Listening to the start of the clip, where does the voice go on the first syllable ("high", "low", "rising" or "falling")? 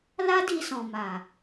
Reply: high